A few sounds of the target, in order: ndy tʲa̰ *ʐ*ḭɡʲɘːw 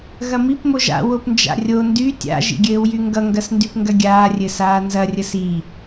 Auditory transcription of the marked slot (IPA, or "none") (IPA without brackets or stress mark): ʒ